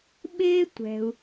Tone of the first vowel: high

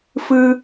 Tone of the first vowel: high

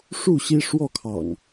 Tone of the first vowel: falling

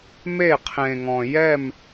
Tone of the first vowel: falling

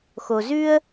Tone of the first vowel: low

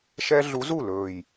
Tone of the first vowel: high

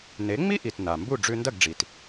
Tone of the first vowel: rising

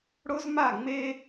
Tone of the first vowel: high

